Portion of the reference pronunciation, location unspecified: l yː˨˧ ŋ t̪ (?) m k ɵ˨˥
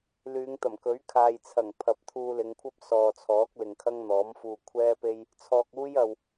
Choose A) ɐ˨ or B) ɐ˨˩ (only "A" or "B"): B